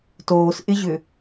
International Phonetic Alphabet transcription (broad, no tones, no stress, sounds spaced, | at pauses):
t oː s ʔ ɪ ʑ ʏ